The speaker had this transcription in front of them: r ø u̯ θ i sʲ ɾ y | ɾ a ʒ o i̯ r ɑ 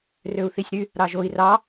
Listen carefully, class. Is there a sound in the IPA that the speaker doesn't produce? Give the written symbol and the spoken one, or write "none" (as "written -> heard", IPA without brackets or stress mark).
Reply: a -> ɑ